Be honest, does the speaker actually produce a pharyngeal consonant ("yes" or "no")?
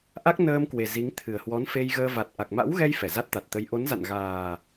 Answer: no